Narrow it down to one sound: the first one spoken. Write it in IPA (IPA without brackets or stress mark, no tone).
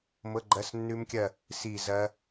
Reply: m